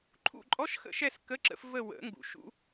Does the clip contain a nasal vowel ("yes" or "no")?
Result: no